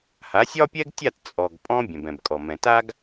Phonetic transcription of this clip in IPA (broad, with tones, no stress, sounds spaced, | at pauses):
h a˩˥ sʲ ɒ˥ pʲ ɛ˥ ɡ tʲ a˥˩ t t͡sʼ ɔ˩ ɡ pʼ ɔ̃˧ bʲ ɛ̃˩ b ɛ̃˩ b kʼ ɔ˩ m ɛ̃˩ t a˥ ɡ